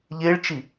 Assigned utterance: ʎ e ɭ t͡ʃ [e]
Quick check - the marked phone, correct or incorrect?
incorrect